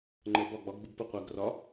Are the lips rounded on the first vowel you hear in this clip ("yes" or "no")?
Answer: no